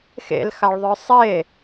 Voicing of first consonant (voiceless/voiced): voiceless